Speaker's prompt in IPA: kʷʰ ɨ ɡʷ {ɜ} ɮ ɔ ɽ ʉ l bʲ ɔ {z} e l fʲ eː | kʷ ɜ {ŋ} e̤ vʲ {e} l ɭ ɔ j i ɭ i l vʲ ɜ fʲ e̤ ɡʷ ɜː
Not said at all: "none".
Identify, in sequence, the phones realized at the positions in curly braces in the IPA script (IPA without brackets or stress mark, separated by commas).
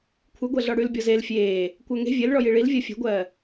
ɜ, z, ŋ, e